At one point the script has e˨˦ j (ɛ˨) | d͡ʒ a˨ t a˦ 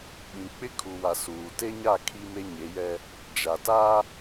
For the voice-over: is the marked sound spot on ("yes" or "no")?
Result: no